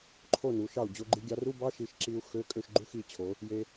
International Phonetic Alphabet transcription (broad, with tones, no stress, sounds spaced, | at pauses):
ǃʰ o˥˩ n u˩˧ ʃ ɑ˥˩ u̯ d͡ʑ o˧ ɡ͡ǃ i˧ ɡʲ ɑ˧ r u˧˥˧ b ɑ˧˥˧ ʃ i˧ ʃ ǁ i˧ u̯ x ø˧˥˧ kʼ ø˥˩ ʃ ɡ͡ǃ u˧˥˧ x i˩˧ t͡ɕʰ o˩˧ | j e˧